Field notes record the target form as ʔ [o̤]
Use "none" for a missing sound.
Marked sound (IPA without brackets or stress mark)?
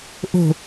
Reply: o̤